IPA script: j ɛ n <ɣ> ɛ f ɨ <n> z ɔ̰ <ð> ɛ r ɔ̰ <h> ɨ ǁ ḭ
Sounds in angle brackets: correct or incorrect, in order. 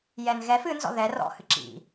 correct, correct, correct, correct

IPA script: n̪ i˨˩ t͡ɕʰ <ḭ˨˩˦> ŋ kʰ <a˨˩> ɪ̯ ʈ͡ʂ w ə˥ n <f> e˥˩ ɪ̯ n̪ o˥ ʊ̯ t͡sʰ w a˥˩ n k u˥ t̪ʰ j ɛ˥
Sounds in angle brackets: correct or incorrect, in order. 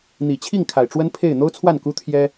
incorrect, correct, incorrect

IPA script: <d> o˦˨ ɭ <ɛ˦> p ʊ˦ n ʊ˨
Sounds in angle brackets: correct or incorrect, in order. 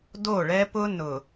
correct, correct

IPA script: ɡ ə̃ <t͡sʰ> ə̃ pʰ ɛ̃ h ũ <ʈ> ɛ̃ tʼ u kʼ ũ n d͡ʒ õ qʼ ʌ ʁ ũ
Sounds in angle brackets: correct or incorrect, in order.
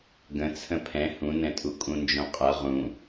correct, incorrect

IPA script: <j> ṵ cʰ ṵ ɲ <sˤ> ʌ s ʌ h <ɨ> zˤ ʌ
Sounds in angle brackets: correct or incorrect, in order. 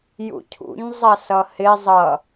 correct, incorrect, incorrect

